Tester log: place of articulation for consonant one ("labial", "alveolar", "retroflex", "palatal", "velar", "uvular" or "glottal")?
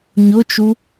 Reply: palatal